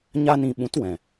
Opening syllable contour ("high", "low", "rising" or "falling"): high